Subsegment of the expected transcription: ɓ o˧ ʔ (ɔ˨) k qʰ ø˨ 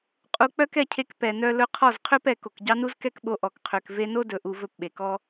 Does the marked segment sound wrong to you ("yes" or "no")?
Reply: no